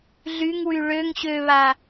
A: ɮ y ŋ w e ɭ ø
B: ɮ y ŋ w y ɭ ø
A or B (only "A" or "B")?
B